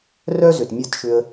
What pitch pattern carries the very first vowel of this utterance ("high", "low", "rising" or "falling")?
high